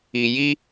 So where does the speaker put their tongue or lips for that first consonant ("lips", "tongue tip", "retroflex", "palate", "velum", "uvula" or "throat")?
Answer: palate